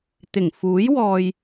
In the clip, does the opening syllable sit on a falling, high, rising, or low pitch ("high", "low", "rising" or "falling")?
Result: low